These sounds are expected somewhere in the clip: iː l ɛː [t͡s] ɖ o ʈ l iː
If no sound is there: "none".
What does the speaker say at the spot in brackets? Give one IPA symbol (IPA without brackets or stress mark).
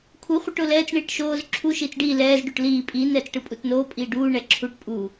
z